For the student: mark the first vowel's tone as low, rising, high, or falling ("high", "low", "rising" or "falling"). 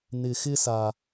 low